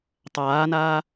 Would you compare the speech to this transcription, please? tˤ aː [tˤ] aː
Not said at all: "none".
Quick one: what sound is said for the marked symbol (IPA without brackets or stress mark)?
n